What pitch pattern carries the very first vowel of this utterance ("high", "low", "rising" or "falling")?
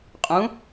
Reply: rising